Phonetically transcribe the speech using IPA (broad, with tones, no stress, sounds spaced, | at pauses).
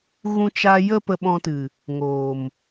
ɣ ũ˧ t͡ʃ a˧ j ə˦ p ə˧ ɓ ɔ̃˧ t ɨ˨ | ŋ oː˨ m